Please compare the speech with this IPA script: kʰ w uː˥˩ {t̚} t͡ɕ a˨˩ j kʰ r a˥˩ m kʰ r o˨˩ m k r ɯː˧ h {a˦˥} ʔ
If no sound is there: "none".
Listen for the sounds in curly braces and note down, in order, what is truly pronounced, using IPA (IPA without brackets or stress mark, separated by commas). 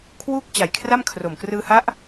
k̚, a˦˥